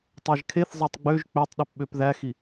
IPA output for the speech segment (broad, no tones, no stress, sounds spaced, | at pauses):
tˤ æ ʒ kʰ e θ zˤ æ tˤ ɡ͡b ø ʒ k͡p ø tˤ ɗ y p ɓ ø p ð æ x i